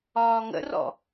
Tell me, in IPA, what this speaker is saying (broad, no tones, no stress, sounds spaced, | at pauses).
ɒː ŋ ə̰ r ɔ̰